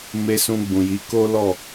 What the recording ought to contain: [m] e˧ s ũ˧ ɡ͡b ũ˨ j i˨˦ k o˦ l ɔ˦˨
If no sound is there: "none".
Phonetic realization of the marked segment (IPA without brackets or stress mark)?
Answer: m